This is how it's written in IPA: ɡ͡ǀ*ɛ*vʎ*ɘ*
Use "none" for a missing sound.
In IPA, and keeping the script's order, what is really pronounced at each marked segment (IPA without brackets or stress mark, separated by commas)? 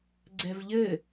ɛ, ɘ